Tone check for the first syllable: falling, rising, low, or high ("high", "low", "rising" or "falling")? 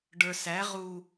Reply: low